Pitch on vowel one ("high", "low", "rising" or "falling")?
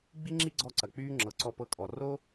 high